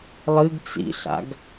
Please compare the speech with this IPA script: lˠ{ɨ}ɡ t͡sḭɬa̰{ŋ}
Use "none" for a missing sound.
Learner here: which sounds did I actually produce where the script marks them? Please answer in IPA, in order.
ɨ, ɡ

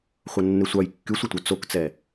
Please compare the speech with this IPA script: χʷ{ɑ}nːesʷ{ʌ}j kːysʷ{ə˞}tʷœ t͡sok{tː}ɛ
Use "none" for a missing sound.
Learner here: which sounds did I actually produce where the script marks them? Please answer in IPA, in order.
ʌ, ɑ, ʌ, t͡s

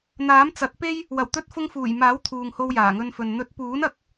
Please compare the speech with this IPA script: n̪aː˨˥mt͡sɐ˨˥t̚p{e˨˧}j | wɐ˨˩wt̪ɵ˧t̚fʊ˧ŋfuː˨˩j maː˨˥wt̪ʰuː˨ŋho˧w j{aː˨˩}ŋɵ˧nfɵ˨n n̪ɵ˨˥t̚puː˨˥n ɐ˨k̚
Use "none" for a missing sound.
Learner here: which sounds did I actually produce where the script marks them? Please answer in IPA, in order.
e˥, aː˨˩

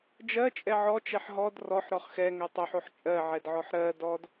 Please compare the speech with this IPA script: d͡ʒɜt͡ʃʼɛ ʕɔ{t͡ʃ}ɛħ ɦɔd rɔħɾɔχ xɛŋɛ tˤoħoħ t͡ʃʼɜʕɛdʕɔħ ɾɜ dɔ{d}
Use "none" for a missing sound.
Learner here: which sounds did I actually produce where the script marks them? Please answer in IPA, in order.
t͡ʃ, d

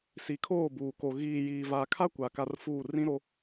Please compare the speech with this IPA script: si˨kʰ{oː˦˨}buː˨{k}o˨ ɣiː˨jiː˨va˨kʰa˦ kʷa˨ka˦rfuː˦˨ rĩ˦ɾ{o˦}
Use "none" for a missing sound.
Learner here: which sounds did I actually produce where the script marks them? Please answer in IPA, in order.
oː˦˨, k, o˦

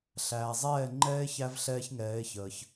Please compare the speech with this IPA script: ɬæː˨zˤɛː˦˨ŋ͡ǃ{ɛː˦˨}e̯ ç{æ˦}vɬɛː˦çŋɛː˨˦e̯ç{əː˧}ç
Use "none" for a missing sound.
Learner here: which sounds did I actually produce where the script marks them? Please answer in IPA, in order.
ɛː˦, æ˦, əː˧

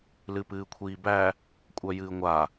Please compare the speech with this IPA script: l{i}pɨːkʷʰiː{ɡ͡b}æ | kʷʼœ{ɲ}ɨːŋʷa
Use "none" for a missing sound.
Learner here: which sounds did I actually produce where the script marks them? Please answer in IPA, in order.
ɨ, b, j

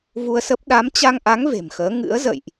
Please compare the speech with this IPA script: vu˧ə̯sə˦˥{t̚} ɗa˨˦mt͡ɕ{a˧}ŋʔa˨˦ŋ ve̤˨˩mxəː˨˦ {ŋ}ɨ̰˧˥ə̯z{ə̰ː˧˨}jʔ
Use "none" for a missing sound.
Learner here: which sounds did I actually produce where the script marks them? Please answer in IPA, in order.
p̚, a˧, ŋ, ə̰ː˧˨

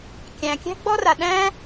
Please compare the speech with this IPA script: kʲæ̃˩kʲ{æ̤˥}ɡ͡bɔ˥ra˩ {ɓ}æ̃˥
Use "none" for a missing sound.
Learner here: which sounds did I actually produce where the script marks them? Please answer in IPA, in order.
æ̤˥, ɗ

